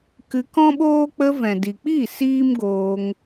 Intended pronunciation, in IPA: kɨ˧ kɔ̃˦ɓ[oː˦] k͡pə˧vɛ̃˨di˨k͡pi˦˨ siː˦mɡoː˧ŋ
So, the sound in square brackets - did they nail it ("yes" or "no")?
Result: yes